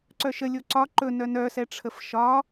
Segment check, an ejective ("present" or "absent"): absent